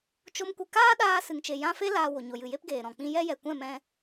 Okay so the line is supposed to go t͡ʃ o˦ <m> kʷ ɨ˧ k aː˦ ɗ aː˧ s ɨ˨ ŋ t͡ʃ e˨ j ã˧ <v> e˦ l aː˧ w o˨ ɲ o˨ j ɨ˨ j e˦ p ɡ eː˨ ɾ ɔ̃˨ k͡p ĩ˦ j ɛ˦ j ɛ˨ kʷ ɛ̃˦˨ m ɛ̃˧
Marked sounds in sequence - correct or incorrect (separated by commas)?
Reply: correct, incorrect